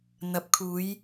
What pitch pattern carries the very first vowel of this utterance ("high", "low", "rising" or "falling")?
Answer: low